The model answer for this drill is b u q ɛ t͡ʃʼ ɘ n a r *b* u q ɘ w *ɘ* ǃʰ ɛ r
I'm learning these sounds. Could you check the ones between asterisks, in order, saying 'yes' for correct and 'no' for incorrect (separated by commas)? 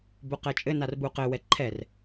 yes, no